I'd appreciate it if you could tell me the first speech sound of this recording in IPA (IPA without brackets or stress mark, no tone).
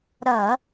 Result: ɾ